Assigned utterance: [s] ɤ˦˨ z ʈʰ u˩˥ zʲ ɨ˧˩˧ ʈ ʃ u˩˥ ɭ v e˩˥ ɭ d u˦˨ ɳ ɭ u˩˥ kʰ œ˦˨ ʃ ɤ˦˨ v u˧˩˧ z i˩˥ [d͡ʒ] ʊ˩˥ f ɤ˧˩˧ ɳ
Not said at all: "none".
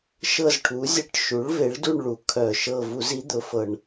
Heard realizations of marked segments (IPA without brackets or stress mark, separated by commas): ʃ, d̪